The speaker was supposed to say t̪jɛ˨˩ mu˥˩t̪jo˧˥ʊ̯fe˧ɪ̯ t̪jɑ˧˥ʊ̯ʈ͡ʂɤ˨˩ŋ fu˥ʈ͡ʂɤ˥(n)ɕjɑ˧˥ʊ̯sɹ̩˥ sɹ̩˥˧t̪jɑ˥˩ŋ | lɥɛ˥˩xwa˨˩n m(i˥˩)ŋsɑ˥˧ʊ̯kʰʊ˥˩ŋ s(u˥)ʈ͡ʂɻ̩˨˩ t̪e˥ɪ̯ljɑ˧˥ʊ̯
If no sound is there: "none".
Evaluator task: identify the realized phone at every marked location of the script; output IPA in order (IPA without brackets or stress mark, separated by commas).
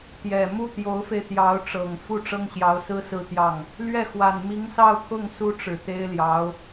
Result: ŋ, i˧˥, u˥